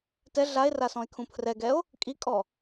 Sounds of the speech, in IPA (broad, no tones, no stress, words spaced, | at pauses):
tɛ ɮae̯ra sɔ̃e̯kʰũpʰrɛɡɛo̯ | kʼikʼɔ